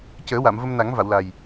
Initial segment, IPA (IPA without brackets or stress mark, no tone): c